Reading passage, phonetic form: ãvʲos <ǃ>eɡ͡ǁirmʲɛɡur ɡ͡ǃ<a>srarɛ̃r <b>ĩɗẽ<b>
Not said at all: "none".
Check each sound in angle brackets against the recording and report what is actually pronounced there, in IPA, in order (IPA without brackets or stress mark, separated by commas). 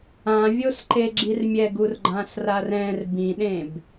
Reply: ǃ, ã, b, b